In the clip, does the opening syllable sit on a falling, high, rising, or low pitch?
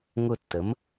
falling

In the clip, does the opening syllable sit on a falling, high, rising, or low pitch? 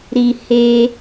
low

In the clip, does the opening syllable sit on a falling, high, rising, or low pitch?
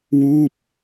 falling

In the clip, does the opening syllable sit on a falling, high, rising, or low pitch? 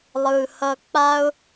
low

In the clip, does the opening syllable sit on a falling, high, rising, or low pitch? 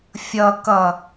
low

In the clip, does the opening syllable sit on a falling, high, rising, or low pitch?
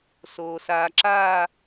low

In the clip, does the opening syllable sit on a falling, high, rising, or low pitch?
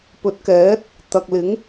rising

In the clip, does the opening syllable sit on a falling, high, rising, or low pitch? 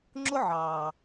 high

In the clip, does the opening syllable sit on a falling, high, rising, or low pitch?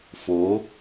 rising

